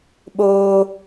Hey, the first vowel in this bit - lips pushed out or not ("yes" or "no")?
yes